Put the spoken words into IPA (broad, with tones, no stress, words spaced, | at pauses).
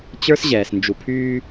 t͡ɕə˞˦sʑɛː˨s nd͡ʒu˨pʰyː˦